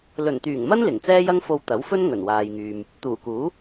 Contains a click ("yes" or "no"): no